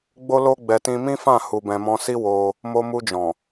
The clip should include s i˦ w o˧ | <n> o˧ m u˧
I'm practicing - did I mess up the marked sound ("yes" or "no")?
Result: yes